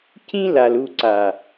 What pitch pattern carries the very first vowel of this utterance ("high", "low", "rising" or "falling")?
high